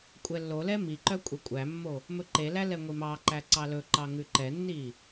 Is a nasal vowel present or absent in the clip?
absent